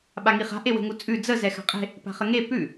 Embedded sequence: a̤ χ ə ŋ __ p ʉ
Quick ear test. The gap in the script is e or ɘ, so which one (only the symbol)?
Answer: e